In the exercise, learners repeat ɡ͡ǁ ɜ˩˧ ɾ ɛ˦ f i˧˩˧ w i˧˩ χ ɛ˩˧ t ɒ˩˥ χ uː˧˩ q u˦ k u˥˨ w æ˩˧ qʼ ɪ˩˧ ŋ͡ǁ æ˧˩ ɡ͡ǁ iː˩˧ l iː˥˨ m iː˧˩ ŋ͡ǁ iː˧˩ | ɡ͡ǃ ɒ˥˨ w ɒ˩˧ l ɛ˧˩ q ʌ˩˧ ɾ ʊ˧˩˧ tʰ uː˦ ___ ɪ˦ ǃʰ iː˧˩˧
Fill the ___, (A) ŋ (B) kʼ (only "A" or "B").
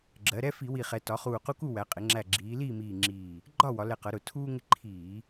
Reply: A